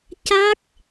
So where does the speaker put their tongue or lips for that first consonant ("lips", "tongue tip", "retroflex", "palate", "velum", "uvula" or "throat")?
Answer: palate